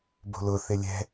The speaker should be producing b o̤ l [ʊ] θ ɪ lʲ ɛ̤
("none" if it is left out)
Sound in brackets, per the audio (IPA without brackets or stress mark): ʊ